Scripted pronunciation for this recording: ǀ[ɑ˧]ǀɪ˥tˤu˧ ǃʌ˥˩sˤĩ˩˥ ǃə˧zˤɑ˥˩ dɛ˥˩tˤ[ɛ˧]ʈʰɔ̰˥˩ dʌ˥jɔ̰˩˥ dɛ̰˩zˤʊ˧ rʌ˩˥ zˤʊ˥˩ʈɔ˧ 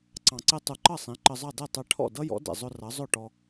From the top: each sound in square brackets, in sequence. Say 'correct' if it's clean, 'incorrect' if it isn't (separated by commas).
incorrect, correct